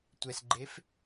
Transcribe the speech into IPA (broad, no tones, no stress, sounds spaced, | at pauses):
tʷ ɛ s ɡ͡ǃ e f